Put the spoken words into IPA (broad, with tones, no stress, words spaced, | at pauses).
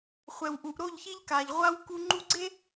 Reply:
χʷɛ˨wʔu˨ʔ ɾo˦˨ʎçi˦ʎka˨ʎ ʁʷa˦w ku˦ ŋ͡ǃu˦ ɡ͡ǀe˦